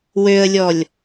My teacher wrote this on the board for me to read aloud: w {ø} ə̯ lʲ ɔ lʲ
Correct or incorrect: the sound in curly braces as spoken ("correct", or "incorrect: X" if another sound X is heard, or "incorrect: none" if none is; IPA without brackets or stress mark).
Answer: correct